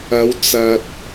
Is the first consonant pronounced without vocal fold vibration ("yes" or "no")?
no